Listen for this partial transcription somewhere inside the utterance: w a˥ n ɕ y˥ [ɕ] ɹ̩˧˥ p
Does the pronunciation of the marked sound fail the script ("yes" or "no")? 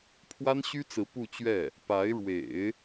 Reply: yes